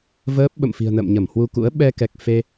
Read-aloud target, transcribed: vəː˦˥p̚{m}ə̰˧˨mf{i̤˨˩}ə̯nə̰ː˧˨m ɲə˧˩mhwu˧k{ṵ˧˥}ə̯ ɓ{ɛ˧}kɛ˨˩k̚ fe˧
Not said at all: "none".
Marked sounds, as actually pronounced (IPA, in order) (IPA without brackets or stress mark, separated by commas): ɓ, i̤˨˩, ṵ˧˥, ɛ˧